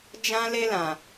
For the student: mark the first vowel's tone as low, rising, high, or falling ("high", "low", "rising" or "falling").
high